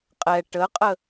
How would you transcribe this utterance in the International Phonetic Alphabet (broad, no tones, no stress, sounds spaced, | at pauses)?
qʼ ɛ ʈ ə qʼ ə